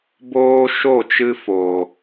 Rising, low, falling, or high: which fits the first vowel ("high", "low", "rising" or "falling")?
high